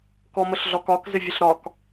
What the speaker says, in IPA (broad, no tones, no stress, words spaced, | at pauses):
kɔməɬɮɒkɒk zɪvʲəɬɾɒk